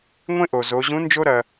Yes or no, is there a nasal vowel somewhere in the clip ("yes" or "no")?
yes